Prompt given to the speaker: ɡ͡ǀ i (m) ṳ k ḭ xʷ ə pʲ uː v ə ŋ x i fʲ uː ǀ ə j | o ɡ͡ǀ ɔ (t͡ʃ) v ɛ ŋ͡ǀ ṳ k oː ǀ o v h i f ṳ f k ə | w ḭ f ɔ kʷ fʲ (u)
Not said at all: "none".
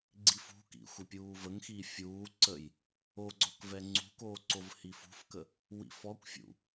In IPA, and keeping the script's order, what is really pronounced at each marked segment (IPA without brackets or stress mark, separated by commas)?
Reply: f, k, ṵ